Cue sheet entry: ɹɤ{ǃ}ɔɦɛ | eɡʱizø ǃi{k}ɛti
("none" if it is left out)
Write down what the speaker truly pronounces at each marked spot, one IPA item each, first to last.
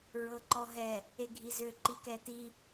ǃ, k

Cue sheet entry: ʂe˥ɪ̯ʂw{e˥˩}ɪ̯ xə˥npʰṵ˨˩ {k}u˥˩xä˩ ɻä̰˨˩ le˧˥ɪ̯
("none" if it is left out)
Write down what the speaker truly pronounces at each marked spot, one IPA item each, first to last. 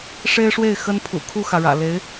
e˥˩, kʰ

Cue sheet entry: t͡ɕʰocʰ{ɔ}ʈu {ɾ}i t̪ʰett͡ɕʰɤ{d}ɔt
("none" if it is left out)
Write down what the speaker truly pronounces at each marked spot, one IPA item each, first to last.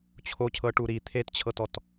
ɤ, ɾ, t

